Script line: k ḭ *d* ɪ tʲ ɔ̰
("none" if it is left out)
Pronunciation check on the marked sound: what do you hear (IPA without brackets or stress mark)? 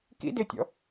d